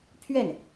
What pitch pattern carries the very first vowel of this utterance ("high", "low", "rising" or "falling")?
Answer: falling